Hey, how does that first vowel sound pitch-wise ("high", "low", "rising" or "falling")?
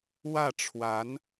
falling